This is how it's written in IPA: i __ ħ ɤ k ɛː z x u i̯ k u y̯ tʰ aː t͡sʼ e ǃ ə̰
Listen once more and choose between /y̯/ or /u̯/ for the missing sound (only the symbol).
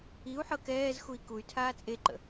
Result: u̯